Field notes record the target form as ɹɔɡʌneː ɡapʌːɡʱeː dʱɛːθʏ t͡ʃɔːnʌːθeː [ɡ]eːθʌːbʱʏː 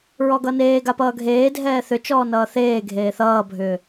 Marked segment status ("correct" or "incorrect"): incorrect